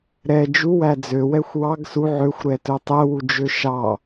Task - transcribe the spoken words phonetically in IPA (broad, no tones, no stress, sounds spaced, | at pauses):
ɾ ɛ d͡ʒ u w æ d͡z ø w ɛ xʷ w ɑ ɡ s u ʕ ø xʷ ɾ ɛ t ɵ tˤ ɛ w u d͡ʒ ø ʃ ɑ